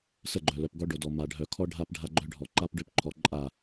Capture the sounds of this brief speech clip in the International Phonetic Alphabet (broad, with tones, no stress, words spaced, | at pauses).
sə˦˨ɡ͡ǃœ˨lœ˨pɡɔ˦ ɖo˨dɔ˨ ma˨ɖʱœ˨ kʰɔ˦ ɖʱa˦p ɖʱa˦ɡ͡ǃœ˦ɖʱɔ˨ ǃa˦pɖø˦pǃʰɔ˨˦ ǃʼa˦˨